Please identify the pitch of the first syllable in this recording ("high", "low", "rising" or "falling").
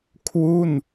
falling